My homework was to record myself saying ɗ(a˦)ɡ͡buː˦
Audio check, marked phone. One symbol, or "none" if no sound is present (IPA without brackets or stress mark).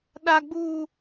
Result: a˦